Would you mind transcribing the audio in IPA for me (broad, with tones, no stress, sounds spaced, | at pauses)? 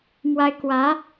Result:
m w a˥ ɪ̯ k w ä˧˥